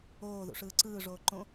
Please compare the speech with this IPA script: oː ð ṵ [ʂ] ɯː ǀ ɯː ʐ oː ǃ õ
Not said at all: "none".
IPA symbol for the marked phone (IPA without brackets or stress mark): ʂ